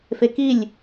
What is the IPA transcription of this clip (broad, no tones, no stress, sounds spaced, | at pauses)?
f e k i lʲ